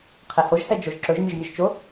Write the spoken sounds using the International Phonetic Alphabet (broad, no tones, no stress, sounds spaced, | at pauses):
qʰ ɛ h o ʒ h ɛ d͡ʒ o ʒ ǁ ɵ ʒ mʲ ɵ ʒ mʲ ɵ ʒ t͡ʃ o